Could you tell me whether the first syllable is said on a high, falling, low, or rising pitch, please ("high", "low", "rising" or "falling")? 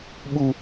low